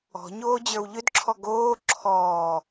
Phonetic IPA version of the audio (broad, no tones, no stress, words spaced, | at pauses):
ɔ̤ɲoː d͡ʑə˞wʎʏdǁʰɔ ɡoː ǁʰɔː